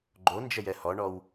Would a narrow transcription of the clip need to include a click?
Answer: yes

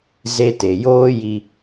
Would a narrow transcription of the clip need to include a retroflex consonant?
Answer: no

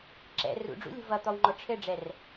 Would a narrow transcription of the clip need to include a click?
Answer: yes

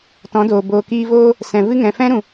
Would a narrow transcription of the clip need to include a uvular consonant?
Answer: no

